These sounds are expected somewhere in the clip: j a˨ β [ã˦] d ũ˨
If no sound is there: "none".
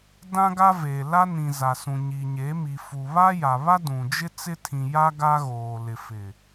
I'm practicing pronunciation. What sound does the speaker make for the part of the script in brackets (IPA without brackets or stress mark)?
a˦